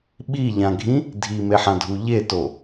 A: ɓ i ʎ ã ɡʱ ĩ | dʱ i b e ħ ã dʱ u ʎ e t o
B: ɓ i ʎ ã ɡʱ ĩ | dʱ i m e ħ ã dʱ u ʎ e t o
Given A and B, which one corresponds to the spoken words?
B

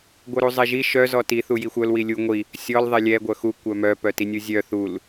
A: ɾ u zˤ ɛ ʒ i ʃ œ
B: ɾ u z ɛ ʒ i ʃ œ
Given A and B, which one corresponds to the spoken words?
A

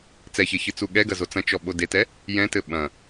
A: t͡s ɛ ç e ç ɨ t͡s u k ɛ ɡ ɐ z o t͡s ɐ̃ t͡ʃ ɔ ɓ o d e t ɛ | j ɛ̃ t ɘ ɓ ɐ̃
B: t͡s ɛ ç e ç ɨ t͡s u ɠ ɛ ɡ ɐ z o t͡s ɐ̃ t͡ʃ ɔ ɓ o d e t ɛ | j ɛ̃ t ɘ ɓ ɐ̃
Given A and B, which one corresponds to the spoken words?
B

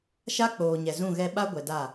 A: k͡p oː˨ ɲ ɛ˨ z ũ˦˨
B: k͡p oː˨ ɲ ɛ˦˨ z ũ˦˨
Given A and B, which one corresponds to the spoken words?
A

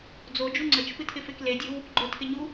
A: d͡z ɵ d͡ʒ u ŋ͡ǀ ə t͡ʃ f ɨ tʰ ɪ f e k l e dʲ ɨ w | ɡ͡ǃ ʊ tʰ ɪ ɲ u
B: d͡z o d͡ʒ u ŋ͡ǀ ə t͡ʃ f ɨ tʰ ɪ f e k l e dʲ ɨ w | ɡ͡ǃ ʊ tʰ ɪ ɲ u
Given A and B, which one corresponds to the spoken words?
B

